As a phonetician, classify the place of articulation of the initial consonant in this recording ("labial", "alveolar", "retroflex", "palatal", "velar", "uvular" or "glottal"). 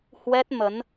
glottal